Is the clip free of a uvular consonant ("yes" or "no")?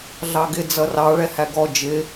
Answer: yes